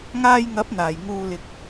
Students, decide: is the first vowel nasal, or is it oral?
oral